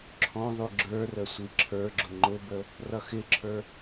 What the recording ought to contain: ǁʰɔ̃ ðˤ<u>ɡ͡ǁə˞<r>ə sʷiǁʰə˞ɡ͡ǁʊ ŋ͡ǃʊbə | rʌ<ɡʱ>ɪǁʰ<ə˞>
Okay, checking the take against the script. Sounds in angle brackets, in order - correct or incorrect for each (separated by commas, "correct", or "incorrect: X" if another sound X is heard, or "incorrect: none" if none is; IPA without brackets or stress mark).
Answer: correct, correct, incorrect: x, correct